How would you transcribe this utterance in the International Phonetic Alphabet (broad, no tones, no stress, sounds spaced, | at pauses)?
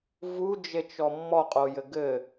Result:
v u d͡ʒ e t͡ʃ ɔ mː ɔ qʼ o j ɘ ɡ ɘ